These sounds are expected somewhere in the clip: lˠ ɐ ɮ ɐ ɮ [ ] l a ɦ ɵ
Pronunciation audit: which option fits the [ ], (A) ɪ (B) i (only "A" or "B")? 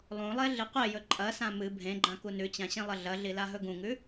B